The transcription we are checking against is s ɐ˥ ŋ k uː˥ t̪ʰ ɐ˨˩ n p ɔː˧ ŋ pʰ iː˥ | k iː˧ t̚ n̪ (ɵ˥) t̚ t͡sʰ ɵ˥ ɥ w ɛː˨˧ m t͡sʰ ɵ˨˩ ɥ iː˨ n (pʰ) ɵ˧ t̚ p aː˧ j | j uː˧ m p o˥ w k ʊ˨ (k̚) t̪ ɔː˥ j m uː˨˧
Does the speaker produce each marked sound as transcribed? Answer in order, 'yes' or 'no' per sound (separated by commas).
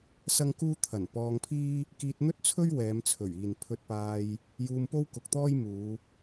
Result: yes, yes, yes